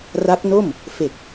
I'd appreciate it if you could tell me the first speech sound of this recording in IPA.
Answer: r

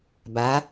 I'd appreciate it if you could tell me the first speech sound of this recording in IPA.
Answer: b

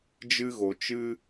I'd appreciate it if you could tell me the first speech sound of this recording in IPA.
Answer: d͡ʒ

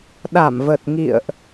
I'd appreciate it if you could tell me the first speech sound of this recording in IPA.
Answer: ɗ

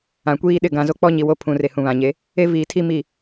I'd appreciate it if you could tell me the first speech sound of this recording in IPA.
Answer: ã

